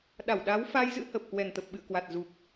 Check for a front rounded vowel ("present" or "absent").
absent